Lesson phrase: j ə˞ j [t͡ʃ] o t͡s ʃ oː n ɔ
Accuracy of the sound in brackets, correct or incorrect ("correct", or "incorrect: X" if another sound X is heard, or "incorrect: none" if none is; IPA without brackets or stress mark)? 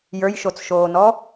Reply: incorrect: ʃ